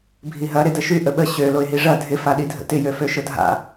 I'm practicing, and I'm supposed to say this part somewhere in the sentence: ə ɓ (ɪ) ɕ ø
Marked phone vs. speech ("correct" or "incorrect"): incorrect